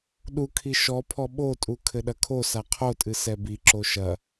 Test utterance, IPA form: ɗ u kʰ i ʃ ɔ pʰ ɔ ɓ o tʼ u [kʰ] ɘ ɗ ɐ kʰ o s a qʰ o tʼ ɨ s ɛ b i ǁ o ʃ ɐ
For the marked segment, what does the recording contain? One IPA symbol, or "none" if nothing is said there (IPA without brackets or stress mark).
kʰ